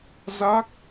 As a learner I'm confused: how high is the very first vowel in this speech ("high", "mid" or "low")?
low